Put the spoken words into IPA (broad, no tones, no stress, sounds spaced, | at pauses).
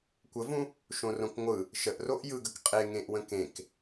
kʷ ə v ũ | ʃ õ r õ k ŋʷ ɯ | ʃ ə ʔ r o ʔ j ɯ ɡ ə k qʼ e ŋ ẽ ʔ w ə̃ k ẽ k